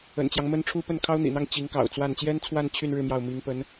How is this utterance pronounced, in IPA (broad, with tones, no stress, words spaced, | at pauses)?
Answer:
ə̰˨˩nt͡ɕjɑ˦ŋmə˥nʈ͡ʂʰu˥ pə˥˩n kʰɑ˥ʊ̯n̪ḭ˨˩n̪ɑ˥˩ŋ t͡ɕi˧˥ŋkɑ̰˨˩ʊ̯t͡swa˥˩n t͡ɕjɛ˥nt͡sʰwa˥˧n t͡ɕʰy˥˧n ɻɻ̩˥˧mjɑ˥˩ʊ̯ mi˧˥ŋpə˧˥n